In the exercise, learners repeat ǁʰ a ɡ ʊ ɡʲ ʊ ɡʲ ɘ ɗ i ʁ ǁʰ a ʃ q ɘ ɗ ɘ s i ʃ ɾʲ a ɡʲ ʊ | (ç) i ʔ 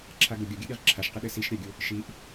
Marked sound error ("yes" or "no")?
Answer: yes